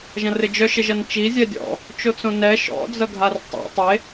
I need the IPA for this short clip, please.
ʒ ɐ̃ r ɪ d͡ʒ œ ʃ ɪ ʒ ɐ n t͡ʃ i zʲ ɛ dʲ ɔ̰ | t͡ʃ o t͡s õ n ɛ ʃ ɔ̰ d͡z ɐ ɡʱ a r tˤ ɛ̰ tˤ e

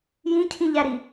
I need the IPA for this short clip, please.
j ĩ cʰ ĩ ʎ æ ɾ i

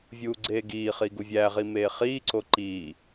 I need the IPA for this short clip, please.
vʲ uː ɡ͡ǀ eː ɡ iː χ i ɡ u vʲ æ ʁ i m eː χ iː ǀ o ǃ iː

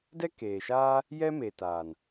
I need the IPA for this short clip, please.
d ɛ˦ k eː˨ ʃ aː˦ | j ɛ˦ m e˨ t aː˨ n

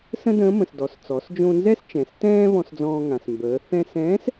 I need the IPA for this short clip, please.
s ə̃˥ d ə̃ː˧˥ m ə̃˩ s d ɔ˩ s t͡s ɔ˩˧ s d͡ʒ õ˧ n z ɛ˥ s t͡ʃ ɛ̃˩˧ s t ɛ̃ː˥ β ɔ̃˧ s d͡z ɔ̃ː˧ ŋ ã˩ s m b əː˩˧ θ ɛ̃˧ s ɛ̃ː˧˥ s

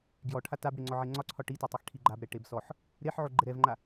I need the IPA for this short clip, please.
ɡ j ɔ ʈʰ a t a b ɽ e ŋ͡ǀ ɔ ʕ e ŋ͡ǀ ɒ ǀʰ ɒ ʈ i t ɔ tˤ ɛ x ʈʰ i ɡ͡ǃ a b ɾ ɛ ʈ e b s ɔ ħ | ɾ e ħ ʕ o ɡ͡ǃ ɛ ɾ ɛ v ŋ͡ǃ a

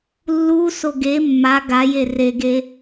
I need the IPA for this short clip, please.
lː u s o ɡ e mː a ɡ a j e r e ɡ e

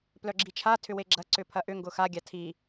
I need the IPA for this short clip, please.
p l œ ɡ͡ǁ i t͡ʃʰ a tʰ ʏ w e ɡ͡ǁ ɐ ǀ ʏ pʰ ɐ ʔ ʏ ŋ ɡ ʊ x a ɡʲ a tʰ i

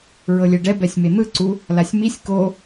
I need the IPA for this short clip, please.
ɹ ɤ lʲ ɛ ɖ ɛ b ɛ sʲ m e n̪ ɯ ǀ u | l a sʲ m i sʲ k o

